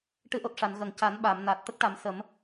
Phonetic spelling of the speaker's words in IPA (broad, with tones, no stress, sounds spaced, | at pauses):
ʈ ɨ˧˥ ʔ o˨˩ t̚ ʂ a˨˩˨ n ɣ ə˨˩ ŋ c a˨˩˦ n ɓ a˨˩˨ m n a˨˩ t̚ t̪ ə˦˥ k̚ ʈ a˨˩˦ m s ə˨˩˦ m